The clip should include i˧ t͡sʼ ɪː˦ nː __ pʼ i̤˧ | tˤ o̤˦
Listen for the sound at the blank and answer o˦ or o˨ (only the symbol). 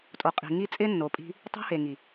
o˨